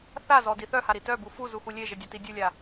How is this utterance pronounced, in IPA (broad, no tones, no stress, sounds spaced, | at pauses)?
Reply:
θ a z ɔ d i θ œ h a ɾ i t œ b u f u z u x u lʲ e ʒ ɘ dʲ ɒ t i dʲ u lʲ a